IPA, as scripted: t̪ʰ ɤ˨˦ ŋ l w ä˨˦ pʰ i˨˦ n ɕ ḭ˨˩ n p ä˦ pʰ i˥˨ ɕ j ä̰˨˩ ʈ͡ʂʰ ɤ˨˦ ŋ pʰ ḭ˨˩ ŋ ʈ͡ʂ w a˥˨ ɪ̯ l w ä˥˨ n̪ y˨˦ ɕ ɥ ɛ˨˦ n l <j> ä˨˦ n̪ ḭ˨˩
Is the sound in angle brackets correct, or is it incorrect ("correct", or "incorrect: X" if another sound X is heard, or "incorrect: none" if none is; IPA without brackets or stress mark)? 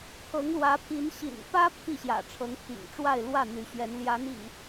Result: correct